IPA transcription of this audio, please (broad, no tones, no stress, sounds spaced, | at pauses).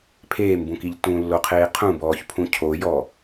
pʰ eː m b ũ k i ʎ t ũ lː o qʰ eː qʰ ũ b ɔː ç pʰ ũ cʰ o j ɔ